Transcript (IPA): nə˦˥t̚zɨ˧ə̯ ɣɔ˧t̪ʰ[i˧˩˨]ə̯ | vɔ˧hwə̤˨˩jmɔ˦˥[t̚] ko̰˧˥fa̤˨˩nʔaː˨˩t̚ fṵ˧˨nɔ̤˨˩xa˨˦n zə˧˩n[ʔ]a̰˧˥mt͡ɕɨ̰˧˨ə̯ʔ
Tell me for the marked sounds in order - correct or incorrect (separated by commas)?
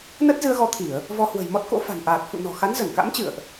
correct, correct, incorrect